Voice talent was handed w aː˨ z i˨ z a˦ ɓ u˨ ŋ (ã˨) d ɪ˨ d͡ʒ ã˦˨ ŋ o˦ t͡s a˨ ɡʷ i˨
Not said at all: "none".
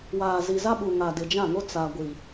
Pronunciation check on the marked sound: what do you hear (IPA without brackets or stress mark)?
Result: a˨